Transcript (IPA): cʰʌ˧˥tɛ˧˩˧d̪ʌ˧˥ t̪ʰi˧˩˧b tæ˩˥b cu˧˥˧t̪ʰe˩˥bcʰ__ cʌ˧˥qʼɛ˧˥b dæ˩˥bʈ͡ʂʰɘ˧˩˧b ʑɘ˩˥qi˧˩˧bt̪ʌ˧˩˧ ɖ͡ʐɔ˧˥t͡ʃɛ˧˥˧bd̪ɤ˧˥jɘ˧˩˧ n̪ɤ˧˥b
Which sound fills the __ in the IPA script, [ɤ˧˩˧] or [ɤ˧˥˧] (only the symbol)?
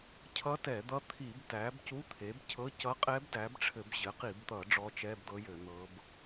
ɤ˧˥˧